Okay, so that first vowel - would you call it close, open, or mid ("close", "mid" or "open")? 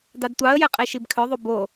open